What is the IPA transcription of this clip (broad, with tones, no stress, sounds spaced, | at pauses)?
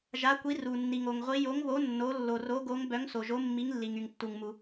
ʒ a˨˥ kʷ i˨˥ r u˩ nː i˩ ŋ o˩ ŋ ʁʷ i˨˥ j o˨˥ ŋ β o˨˥ nː o˨˥ lː o˩ r o˨˥ ɡ o˨˥ ŋ b œ˨˥ ŋ s o˩ ʒ o˨˥ mː i˨˥ ŋ lː i˩ ŋ y˩ ŋ tː u˩ ŋ m u˩